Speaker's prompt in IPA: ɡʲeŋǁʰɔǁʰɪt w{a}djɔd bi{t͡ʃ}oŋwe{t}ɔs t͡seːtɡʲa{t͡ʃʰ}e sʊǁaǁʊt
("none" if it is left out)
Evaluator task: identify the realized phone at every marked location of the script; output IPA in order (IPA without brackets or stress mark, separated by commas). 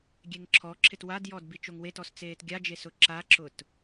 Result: a, t͡ʃ, t, d͡ʒ